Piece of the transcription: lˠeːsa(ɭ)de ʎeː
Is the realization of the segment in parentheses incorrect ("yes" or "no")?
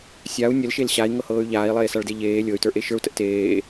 no